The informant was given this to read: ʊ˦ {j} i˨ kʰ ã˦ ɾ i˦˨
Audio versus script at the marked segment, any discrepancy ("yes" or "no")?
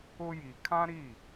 no